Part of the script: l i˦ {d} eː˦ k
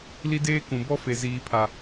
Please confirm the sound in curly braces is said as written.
yes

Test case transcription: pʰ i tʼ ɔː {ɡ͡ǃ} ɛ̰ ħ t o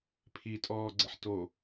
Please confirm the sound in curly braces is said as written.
no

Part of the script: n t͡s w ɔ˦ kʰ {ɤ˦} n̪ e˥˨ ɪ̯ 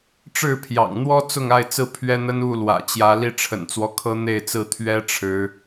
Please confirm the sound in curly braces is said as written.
yes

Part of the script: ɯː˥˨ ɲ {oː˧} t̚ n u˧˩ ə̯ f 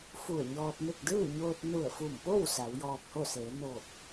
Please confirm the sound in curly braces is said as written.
yes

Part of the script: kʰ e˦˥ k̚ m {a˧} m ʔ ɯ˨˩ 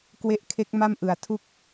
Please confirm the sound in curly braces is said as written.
no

